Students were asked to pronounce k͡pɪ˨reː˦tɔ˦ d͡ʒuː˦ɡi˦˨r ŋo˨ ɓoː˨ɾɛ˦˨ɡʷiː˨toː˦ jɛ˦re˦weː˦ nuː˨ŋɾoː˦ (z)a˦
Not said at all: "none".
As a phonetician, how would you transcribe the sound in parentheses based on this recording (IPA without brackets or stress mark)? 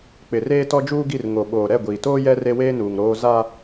z